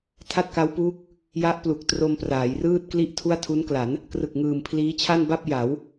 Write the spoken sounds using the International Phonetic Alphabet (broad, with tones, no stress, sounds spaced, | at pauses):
tʰ a˥˩ t̚ k a˦˥ w p uː˦˥ k̚ | j a˦˥ ʔ p l u˨˩ k̚ t r o˧ m p r aː˩˦ j r ɯː˥˩ t̚ k l i˥˩ ʔ tʰ u˥˩ a̯ tʰ u˦˥ n k l a˩˦ n | k r ɯ˨˩ k̚ ŋ ɯː˨˩ m pʰ l iː˦˥ t͡ɕʰ a˥˩ n b a˥˩ p̚ j a˩˦ w